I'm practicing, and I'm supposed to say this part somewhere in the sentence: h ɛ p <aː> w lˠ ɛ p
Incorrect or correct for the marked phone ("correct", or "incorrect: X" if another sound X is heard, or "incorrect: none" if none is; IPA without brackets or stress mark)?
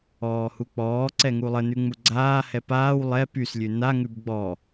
correct